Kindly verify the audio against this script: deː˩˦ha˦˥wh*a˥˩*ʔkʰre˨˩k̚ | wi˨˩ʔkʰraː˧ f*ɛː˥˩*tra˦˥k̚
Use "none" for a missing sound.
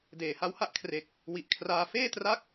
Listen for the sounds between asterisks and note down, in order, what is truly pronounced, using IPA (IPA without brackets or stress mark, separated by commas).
a˥˩, eː˥˩